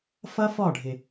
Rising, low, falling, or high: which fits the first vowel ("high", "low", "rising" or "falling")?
high